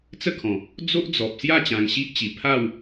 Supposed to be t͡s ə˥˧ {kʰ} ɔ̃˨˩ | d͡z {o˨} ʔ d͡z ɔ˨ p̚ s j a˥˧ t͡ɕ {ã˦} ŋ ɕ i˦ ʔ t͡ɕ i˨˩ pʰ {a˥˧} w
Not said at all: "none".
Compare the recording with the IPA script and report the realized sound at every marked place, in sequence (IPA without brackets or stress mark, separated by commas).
kʰ, o˦, ã˧, a˥˧